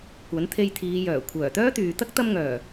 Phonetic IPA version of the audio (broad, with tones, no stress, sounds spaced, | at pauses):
kʷ ɐ˨˥ n t̪ʰ e˧ j t̪ʰ iː˨˧ j œː˨˩ kʷʰ œː˨˩ t̪ œː˥ t̪ yː˨ t̪ ɐ˥ k̚ t̪ ɐ˧ m ŋ œː˨˩